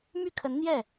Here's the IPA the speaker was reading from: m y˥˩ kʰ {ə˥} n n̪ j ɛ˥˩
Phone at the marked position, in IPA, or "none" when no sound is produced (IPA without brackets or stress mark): ə˧˥